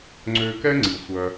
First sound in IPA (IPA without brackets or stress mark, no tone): ŋ͡ǀ